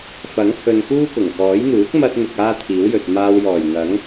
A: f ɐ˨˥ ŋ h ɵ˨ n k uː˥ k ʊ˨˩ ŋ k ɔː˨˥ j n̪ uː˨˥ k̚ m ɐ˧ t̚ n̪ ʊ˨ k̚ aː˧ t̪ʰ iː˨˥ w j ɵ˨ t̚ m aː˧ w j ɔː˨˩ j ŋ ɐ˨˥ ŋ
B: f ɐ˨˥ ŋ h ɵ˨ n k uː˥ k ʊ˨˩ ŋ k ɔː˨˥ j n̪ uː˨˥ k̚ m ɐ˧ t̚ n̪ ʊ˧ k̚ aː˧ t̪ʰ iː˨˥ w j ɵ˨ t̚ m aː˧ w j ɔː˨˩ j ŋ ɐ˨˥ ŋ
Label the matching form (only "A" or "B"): A